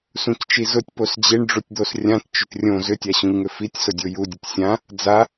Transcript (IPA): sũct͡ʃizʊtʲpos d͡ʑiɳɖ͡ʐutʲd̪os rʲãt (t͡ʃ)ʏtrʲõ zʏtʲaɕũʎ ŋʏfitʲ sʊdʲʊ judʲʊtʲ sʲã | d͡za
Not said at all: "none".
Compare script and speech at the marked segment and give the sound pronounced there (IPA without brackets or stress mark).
t͡ʃ